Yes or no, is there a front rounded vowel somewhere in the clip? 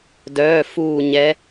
yes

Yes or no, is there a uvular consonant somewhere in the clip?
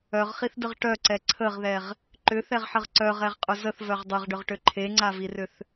yes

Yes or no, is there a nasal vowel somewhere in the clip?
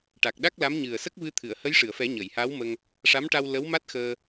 no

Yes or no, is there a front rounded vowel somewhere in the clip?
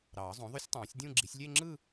yes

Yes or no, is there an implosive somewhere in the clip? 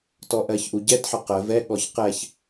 yes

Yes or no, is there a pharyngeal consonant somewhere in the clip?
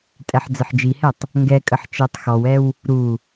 yes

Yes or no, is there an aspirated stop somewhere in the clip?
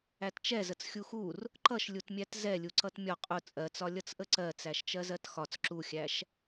no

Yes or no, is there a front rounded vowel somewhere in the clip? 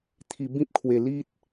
no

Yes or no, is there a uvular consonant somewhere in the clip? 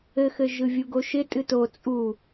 no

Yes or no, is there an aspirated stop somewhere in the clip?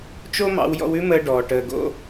no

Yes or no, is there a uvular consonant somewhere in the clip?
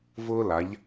no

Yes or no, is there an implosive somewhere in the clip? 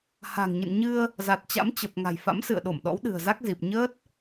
yes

